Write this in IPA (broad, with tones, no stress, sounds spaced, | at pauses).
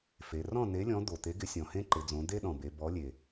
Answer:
f e˩˧ r ɔ̃˥˨ n e˨˥ lʲ ɔ̃˨˥ d̪ o˩ t̪ e˨˥ ɡ ɪ˨˥ sʲ ɔ̃˩ h ẽ˥ ǃ ɪ˩˧ d͡z õ˩˧ d̪ e˥ ɗ ɔ̃˩ b e˩˧ b ɔ˨˥ lʲ e˩